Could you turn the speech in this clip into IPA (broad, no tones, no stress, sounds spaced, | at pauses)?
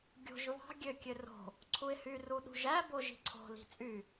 ɡʲ o̤ ʒ β ɑ̤ ɡʲ ø kʲ ø r o̤ | ǀʰ u ɪ̯ h y r u ɗ ṳ ʒ æ b o ʒ i̤ ǀʰ o̤ l i̤ t͡sʼ y